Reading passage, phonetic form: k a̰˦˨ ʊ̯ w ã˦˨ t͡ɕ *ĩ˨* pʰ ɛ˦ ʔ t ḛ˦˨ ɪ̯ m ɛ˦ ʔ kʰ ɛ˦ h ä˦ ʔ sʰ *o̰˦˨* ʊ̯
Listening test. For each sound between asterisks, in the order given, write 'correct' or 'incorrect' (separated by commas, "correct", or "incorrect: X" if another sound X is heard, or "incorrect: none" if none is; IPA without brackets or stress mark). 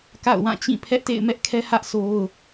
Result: incorrect: ĩ˦˨, incorrect: o˦